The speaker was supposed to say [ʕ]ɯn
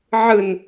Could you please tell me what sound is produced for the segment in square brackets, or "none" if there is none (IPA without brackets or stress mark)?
ʕ